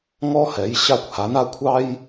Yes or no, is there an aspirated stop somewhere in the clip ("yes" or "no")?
yes